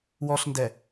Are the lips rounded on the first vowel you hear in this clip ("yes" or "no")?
yes